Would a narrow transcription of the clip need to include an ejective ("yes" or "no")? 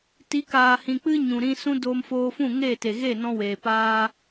no